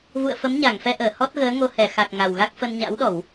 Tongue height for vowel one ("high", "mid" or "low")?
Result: high